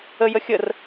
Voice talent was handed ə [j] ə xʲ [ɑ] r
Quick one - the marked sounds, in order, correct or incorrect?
correct, incorrect

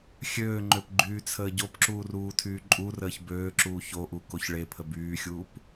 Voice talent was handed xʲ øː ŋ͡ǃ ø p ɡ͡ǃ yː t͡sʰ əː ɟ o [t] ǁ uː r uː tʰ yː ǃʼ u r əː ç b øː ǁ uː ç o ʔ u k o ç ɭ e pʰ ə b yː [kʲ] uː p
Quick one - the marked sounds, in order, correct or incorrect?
incorrect, incorrect

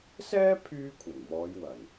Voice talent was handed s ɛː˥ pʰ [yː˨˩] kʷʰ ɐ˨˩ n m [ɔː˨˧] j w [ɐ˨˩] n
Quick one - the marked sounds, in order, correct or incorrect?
incorrect, correct, correct

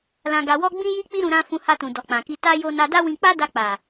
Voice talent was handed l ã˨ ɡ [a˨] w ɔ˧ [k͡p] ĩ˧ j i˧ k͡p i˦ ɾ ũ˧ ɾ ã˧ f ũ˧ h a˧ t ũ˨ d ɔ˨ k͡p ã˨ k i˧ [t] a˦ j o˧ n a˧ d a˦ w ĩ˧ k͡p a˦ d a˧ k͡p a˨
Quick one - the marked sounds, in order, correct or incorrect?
correct, incorrect, correct

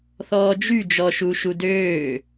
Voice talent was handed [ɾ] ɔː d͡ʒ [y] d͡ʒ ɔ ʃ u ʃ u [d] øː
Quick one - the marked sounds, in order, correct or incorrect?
incorrect, correct, correct

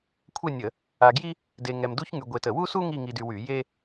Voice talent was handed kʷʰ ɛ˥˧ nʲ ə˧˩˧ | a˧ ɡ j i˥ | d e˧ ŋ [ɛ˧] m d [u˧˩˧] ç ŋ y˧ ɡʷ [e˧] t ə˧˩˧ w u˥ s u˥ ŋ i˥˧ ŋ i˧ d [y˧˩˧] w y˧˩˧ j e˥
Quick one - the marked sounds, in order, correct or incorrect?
correct, incorrect, correct, incorrect

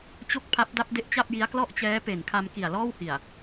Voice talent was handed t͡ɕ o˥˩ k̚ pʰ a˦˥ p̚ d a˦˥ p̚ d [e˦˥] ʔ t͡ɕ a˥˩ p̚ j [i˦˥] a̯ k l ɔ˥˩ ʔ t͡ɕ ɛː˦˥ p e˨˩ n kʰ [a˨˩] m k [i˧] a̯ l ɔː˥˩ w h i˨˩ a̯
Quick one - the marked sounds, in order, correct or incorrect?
correct, correct, incorrect, incorrect

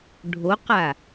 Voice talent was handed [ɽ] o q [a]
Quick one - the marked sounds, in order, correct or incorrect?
incorrect, correct

